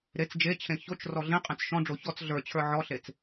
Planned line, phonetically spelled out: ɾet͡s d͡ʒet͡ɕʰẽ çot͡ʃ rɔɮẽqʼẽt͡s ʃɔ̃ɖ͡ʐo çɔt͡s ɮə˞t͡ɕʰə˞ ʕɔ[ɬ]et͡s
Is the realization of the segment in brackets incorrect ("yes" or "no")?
no